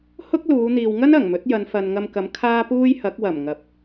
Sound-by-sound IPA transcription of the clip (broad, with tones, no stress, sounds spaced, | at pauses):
h ʊ˥ k̚ l uː˨˧ n̪ iː˨ w ŋ ɐ˥ n ɐ˨˩ ŋ m ɵ˨˥ t̚ j ɐ˨˧ n f ɐ˨ n ŋ ɐ˧ m k ɐ˨˥ m kʰ aː˥ p uː˥ j h ɐ˨˥ k̚ w ɐ˨˩ m ŋ ɐ˨˥ p̚